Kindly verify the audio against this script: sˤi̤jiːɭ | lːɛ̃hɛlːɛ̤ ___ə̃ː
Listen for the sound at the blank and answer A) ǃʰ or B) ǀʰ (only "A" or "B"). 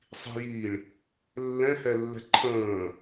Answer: A